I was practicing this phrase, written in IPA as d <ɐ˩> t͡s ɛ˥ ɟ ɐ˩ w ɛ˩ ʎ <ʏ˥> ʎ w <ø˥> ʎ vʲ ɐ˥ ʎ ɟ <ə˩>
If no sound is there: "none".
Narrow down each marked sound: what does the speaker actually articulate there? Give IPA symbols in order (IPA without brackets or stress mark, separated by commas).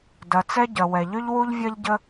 ɐ˩, ʏ˥, u˥, ə˥